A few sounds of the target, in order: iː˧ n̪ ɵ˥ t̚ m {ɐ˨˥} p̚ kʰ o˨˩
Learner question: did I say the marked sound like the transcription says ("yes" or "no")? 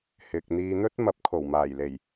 yes